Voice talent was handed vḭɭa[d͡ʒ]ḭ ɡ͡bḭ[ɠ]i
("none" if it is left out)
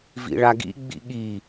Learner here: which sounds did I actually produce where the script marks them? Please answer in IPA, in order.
ɡ, ɠ

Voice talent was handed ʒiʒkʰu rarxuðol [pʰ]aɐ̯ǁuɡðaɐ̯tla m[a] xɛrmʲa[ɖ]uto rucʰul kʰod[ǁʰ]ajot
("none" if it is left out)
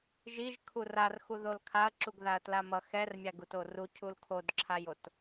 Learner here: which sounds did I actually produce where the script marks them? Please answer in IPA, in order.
kʰ, ʌ, ɡ, ǁʰ

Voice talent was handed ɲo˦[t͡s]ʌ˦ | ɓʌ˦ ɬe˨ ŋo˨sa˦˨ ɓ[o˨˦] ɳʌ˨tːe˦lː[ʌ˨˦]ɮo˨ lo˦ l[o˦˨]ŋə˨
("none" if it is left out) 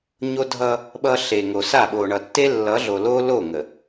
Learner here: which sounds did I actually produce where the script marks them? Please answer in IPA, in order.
dʱ, o˨, ʌ˨˦, o˦˨

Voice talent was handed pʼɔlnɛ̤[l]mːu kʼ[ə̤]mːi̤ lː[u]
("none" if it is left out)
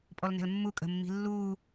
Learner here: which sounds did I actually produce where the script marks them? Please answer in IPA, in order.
l, ə̤, u

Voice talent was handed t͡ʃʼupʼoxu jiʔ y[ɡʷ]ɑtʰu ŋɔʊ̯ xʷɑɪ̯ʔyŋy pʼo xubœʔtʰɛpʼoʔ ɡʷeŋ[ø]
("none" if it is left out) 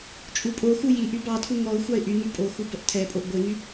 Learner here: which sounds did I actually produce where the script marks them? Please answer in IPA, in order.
b, y

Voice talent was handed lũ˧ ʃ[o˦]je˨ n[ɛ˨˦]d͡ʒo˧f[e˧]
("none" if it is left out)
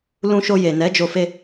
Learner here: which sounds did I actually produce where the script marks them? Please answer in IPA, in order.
o˧, ɛ˨˦, e˧

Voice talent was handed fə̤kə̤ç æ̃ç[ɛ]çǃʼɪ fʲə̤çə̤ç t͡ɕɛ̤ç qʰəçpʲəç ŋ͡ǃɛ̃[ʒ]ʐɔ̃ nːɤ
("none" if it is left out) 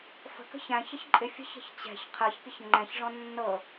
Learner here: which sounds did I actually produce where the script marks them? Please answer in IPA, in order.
ə, ç

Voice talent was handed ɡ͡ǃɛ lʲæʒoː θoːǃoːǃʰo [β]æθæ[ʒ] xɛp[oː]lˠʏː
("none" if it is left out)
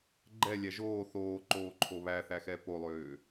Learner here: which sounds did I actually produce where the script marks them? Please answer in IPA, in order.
β, none, o

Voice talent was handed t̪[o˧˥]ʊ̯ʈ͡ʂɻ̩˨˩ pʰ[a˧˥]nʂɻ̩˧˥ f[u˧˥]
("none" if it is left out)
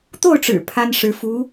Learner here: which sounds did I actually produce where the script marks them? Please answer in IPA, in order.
o˥˩, a˥, u˧˥

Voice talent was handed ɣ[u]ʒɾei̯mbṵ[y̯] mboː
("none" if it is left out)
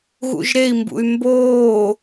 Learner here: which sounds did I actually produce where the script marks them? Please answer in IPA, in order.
ṵ, y̯

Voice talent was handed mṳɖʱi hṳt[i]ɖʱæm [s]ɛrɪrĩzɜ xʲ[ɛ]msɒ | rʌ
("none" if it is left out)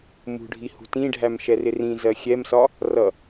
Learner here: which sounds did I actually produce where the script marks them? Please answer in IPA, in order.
ĩ, ʃ, ɛ

